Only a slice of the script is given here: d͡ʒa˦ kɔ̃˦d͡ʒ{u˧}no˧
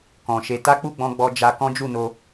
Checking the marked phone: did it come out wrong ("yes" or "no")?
yes